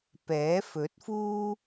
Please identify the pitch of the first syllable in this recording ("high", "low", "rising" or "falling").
rising